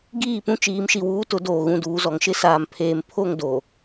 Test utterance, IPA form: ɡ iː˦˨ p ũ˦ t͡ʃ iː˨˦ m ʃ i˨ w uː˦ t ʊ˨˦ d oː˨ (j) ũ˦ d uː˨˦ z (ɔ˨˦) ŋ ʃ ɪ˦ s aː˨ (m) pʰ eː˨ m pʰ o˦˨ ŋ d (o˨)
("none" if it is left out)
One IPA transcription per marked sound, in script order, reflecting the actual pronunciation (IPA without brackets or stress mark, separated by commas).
ɣ, ɔ˨˦, m, o˨